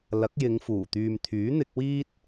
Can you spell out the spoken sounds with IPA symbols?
lɐ˨˥k̚jɪ˨˧ŋfuː˨˩t̪yː˨m t̪ʰyː˨˥n̪ɪ˧k̚ wiː˥t̚

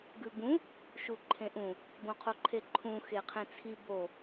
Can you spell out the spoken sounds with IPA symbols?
ɡʉbũ | ʃuǃʰẽʔũ | bõqʰoǃʰeǃʰũ xeqʰẽt͡sʰi bo

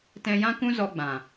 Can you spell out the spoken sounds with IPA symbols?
tɛ̃˧jã˦kũ˦ zɔ˧ɡ͡bã˨

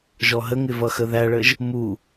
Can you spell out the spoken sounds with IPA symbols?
ʒɔɦəŋɪ vʌxəðæɭəʒ | mu

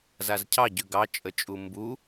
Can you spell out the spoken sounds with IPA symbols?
zazcʰɑ ɟʉɡɑ t͡ʃʼət͡ʃʼumbu

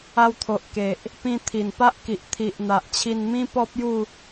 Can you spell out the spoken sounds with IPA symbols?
a˧wt̪ʰo˨ʔke˨ʔ | pĩ˧t̪ʰi˨˩npa˦ʔ ki˨ʔt̪ʰi˨ʔn̪a˨ʔt͡ɕʰi˧n mĩ˦pɔ˦p̚ju˥˧

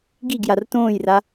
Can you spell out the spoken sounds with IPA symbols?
ɡiɡjar tõːjra

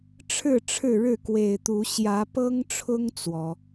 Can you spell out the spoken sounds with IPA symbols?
ʈ͡ʂʰɻ̩˥˨ ʈ͡ʂʰɻ̩˥˨ɻɻ̩˥˨kwe˨˩ɪ̯t̪u˨˦ ɕjä˨˦pɤ˦ŋʈ͡ʂʰʊ˦ŋ t͡swɔ˨˦

